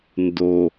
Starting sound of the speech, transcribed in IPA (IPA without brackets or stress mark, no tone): n